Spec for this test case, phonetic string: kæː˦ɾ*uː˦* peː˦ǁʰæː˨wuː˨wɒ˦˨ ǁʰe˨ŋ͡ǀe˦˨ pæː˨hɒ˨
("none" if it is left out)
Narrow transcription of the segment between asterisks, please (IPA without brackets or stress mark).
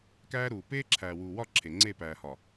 uː˨